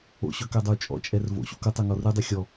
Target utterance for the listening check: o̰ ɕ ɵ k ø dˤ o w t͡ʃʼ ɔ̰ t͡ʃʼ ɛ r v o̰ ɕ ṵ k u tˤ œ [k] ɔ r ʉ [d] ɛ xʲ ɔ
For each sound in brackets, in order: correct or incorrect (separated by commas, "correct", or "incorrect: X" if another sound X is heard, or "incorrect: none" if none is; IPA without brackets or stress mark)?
incorrect: ŋ, incorrect: dˤ